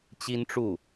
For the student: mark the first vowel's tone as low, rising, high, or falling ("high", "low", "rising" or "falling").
high